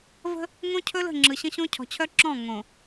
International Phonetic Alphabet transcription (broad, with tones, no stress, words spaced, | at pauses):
və̤˦ | ŋõ˦cʰɵ˦lə̤˦˨ ŋ͡ǁɯ˨ɕə̃˦ɕõ˦ cʰɔ̤˨t͡ɕʰœ˦ǁɔ̃˦˨ ŋõ˨